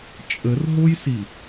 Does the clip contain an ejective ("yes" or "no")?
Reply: yes